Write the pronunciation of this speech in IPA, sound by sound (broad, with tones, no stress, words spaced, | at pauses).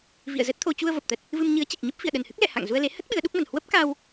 vḭ˧˨ə̯zə˦˥t̚t̪ʰo˧ t͡ɕu˧ə̯və˨˩p̚t̪ə˨˩t̚ | vɨ˧m ɲɨ˨˦ə̯t͡ɕi˨˩k̚ɲə˦˥p̚ fḭ˧˨ə̯ɗə˨˩nhɨ˦˥k̚lɛ̰˧˨ ha̰˧˨ŋ zu˧ə̯le˨˦hə˦˥t̚ ɓɨ˨˦ə̯ɗu˦˥k̚mə˨˩n hwə˦˥p̚ ka˧w